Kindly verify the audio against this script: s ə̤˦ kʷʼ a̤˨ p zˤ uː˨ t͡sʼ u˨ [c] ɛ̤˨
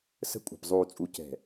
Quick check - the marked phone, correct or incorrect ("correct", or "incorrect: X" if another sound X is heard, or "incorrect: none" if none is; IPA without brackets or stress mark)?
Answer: correct